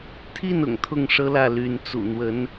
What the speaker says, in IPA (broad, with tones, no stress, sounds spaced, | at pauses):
t̪ʰ i˥˩ n ʊ̰˨˩ ŋ t̪ʰ ʊ˥˩ ŋ ʂ ɤ˥ l ä˥˩ l y˧˥ n t͡s ṵ˨˩ n̪ w ə˧˥ n